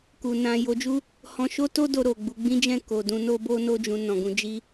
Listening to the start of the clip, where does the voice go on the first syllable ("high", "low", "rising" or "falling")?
low